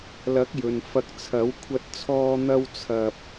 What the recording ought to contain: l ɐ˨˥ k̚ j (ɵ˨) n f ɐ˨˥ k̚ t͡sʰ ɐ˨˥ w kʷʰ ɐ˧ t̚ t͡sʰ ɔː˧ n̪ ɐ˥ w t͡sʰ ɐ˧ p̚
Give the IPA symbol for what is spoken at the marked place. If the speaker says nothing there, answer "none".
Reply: ɵ˨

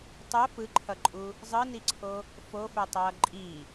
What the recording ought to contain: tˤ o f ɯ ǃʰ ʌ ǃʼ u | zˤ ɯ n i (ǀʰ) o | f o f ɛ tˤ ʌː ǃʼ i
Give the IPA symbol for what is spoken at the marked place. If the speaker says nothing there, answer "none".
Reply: ǀʰ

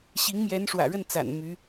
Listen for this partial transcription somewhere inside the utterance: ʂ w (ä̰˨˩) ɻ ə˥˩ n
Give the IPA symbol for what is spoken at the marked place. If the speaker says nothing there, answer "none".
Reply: ä̰˨˩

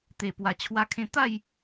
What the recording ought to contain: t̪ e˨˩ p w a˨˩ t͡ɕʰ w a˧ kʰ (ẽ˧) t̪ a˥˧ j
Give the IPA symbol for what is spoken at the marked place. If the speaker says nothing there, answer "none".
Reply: ẽ˧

